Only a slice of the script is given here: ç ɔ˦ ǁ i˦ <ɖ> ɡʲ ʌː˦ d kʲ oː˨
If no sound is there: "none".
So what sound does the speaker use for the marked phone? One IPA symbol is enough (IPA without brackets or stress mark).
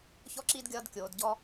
d